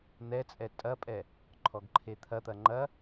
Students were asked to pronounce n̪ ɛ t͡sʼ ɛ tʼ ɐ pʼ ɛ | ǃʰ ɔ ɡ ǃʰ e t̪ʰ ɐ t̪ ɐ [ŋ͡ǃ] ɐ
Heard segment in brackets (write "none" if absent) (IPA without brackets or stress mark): ŋ͡ǃ